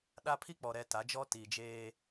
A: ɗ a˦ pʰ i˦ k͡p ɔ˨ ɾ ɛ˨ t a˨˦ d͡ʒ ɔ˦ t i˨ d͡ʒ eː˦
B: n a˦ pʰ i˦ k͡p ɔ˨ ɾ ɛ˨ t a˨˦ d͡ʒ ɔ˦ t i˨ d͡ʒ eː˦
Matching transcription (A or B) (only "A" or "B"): A